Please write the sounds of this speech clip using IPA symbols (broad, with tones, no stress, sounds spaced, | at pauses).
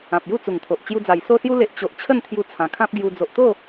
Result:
ã˨ p̚ j u˥˧ t͡s u˨˩ ŋ t̪ʰ o˨ ʔ t͡ɕ j u˧ d͡z a˨˩ j s o˧ s j u˧ l e˨ ʔ t͡ɕ o˨ ʔ t͡ɕʰ ə˥˧ n t̪ʰ j u˧ t͡sʰ ã˨˩ kʰ ã˦ p̚ ɡ j u˧ d͡z o˨ ʔ t̪ o˥˧